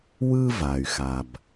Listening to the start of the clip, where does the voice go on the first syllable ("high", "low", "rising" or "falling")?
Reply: high